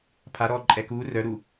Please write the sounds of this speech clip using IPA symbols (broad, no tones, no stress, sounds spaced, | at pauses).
pʰ a ɾ ɔː ǃʼ ɛ k uː r œ ɾ uː